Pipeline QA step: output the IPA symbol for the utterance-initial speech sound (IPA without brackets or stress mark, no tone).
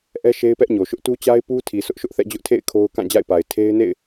ʔ